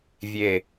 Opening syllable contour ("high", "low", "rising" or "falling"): falling